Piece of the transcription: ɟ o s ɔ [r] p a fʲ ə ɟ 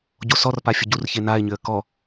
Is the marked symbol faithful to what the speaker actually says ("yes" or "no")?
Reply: yes